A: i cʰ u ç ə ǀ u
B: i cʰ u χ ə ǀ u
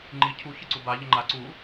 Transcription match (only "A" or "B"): A